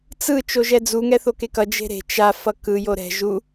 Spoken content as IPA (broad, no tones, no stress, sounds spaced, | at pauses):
t͡s ɯ t͡ʃ o ʒ ɛ d͡z u ŋ ɛ θ o k e k ʌ d͡ʒ e̤ ɾ e̤ t͡ʃ a f ʌ k ɯ j o ɾ ɛ̤ ʒ u